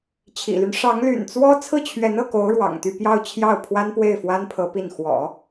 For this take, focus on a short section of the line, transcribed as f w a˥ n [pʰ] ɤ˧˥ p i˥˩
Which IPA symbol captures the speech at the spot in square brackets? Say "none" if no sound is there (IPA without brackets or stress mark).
pʰ